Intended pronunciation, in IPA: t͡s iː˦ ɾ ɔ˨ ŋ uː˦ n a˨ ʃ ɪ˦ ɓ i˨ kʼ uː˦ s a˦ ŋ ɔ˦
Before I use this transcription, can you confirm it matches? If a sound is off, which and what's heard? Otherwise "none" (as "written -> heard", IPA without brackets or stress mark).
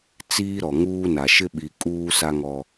none